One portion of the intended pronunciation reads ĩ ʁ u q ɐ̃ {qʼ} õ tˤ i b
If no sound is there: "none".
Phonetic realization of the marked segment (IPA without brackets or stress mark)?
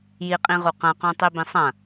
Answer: q